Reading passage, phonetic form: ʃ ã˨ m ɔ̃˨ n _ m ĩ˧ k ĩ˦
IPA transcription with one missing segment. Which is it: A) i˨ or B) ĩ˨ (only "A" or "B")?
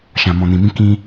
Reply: B